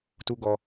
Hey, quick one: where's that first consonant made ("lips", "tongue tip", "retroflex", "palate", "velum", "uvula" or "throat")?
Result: tongue tip